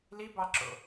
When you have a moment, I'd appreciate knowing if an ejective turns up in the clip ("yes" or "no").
no